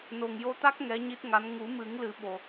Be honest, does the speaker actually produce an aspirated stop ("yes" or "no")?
no